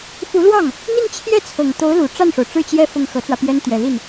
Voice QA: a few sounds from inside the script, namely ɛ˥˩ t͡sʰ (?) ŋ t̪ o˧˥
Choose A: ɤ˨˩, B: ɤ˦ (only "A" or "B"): A